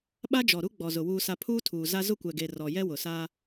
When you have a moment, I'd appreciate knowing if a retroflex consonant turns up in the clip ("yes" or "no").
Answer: no